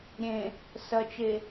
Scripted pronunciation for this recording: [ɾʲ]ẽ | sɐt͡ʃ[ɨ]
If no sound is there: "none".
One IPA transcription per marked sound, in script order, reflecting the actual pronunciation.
ɾʲ, e

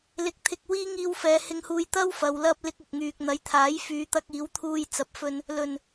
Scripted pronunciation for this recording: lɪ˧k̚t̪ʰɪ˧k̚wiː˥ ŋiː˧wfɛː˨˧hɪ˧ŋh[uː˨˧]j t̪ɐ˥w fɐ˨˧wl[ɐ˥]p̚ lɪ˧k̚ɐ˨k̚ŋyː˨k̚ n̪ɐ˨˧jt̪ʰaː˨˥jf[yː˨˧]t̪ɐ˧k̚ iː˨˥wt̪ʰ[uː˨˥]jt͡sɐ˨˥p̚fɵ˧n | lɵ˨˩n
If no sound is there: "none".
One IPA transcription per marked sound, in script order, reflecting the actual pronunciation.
uː˧, ɐ˥, yː˨˧, uː˧

